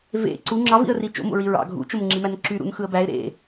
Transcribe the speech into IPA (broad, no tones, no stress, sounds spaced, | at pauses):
v ḛ ǀ u ŋ͡ǁ ɑ v ḭ ə̯ r i t͡ʃ o̰ m o̰ ɹ i ɹ ɑ̰ ɡʱ ṵ t͡ʃ o m ŋ͡ǁ i m æ n ǁ y ɾ ṵ n x ɯ ə̯ b æ ɪ̯ ɾ ḛ